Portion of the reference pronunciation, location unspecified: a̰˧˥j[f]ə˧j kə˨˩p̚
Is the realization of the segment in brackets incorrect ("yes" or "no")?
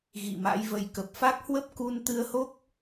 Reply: yes